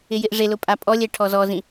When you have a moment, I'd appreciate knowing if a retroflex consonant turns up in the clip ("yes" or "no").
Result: yes